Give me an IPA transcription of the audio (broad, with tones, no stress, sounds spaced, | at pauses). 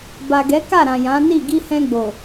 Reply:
b a˨ ɡ ɛ˨˦ k a˦˨ ɾ ã˨ j ã˨˦ n i˦˨ ɡ i˧ h ɛ̃˧ ɡ͡b o˨